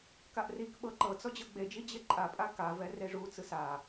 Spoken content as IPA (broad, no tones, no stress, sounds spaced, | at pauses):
k a ʔ r i k ɓ ɤ ǃ ɤ t͡s ɔ d͡ʑ ɤ ɡ͡b e d͡ʒ i d͡ʑ e ǃʼ a pʼ a k a v ɛ r e ʐ u t͡s ɯ s a